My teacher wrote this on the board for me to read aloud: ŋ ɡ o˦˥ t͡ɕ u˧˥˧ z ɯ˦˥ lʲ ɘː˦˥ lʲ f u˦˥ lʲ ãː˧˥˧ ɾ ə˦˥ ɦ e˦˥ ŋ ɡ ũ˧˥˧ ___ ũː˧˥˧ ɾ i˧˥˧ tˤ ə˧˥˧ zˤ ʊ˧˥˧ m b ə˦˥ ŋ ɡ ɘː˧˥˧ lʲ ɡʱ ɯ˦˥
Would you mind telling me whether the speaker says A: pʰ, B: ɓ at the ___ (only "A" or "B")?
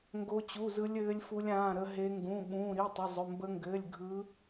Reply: B